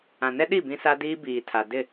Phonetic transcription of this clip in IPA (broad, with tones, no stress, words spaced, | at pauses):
ã˨nɛ˦ɗi˦˨ bĩ˦sa˦diː˦ biː˨tʰa˨ dɪ˦˨